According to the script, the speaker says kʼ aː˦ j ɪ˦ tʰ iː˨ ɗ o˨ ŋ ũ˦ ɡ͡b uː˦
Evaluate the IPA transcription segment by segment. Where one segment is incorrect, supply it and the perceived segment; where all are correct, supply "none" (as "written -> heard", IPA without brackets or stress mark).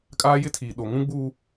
none